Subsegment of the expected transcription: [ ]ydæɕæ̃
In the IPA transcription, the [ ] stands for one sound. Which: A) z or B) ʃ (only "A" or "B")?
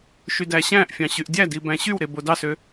B